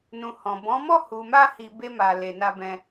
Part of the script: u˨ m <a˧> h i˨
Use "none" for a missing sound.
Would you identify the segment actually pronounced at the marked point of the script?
a˧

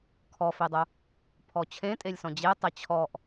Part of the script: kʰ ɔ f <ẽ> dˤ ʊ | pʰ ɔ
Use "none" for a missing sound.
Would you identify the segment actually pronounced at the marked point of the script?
e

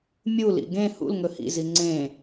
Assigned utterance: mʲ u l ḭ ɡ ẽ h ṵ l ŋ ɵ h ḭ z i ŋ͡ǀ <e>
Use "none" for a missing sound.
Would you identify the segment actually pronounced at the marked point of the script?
ẽ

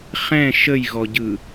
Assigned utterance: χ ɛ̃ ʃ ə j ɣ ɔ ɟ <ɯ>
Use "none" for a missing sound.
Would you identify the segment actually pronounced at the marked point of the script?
ɯ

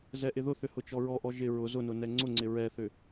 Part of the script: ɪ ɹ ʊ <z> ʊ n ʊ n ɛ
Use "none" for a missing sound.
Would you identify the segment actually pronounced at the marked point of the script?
z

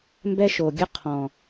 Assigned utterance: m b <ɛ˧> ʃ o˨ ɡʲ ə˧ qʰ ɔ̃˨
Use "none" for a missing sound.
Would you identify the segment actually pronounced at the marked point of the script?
ɛ˧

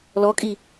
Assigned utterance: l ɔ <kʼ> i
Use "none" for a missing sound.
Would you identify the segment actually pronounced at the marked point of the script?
kʼ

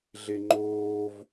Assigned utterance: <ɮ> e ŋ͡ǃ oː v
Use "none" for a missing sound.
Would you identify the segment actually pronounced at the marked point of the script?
ɮ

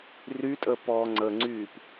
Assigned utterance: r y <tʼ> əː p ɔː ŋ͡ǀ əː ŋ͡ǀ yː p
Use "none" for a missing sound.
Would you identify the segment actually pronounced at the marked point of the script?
tʼ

